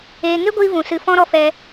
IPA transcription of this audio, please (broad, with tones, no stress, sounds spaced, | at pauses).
eː˧ ŋ e˦ ɡʷ iː˧ v ũ˨ s ɨ˧ f ɔ̃˦ ɾ ɔ˧ f ɛ˧